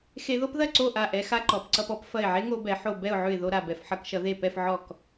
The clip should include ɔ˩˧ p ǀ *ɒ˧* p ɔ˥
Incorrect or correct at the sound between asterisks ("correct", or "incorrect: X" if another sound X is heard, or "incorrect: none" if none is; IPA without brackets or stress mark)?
incorrect: ʌ˧